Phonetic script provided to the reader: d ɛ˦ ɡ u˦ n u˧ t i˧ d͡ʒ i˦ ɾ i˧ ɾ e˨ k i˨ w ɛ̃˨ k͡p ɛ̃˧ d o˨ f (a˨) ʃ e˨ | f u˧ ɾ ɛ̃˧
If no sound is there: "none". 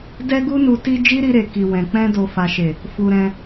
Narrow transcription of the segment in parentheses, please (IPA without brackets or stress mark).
a˨